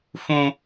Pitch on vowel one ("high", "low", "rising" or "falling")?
high